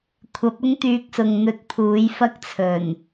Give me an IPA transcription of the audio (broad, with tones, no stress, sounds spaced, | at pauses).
kʷʰ ɐ˨˥ p̚ ʊ˥ ŋ t̪ yː˧ k̚ s ʊ˨ ŋ n̪ ɵ˨ t̚ pʰ uː˨˥ j f ɐ˥ k̚ t͡sʰ ɵ˨˩ n